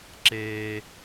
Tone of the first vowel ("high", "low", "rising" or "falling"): high